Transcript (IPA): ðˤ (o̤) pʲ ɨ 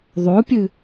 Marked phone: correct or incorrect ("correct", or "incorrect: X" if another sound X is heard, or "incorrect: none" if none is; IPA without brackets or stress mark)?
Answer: incorrect: o